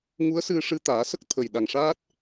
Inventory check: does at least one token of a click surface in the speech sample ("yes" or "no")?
no